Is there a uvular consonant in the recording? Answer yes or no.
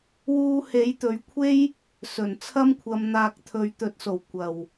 no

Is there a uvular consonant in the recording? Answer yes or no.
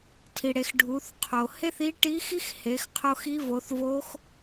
yes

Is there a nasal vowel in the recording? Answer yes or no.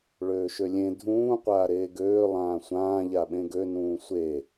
yes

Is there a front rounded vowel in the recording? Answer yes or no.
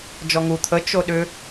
yes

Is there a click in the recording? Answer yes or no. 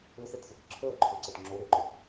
yes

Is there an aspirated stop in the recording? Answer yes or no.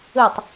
no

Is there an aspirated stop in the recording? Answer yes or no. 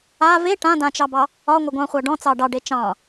no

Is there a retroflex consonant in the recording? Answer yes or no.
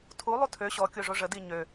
yes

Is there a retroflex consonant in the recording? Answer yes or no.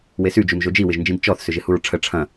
yes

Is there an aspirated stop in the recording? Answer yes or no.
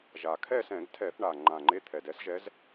yes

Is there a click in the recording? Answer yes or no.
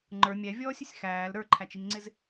yes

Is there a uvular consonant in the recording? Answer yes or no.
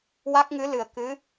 no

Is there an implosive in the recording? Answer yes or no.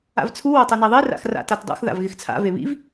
no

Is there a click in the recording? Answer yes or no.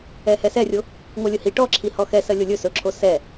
yes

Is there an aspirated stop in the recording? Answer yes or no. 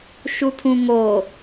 yes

